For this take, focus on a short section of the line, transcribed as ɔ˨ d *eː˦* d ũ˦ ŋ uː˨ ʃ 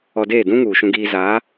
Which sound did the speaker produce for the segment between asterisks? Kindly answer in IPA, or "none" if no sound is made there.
eː˦˨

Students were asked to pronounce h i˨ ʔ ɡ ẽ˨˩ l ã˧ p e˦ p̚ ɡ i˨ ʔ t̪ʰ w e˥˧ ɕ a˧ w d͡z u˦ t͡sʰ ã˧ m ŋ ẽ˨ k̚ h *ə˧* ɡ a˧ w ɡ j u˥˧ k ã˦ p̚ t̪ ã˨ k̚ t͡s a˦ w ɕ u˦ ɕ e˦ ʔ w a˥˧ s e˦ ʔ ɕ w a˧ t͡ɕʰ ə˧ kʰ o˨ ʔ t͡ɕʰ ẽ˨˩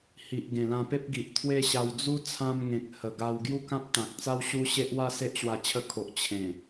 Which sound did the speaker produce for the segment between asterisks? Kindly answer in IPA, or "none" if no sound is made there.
ə˨˩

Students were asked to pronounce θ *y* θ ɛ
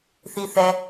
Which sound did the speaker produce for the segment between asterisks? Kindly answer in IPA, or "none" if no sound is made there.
i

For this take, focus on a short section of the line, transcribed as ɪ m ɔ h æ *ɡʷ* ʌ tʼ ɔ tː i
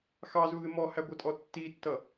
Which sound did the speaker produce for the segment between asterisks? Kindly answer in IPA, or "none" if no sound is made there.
ɡʷ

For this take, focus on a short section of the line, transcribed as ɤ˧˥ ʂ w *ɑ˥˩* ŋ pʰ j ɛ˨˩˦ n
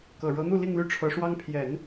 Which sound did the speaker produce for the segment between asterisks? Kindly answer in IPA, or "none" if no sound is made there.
ɑ˥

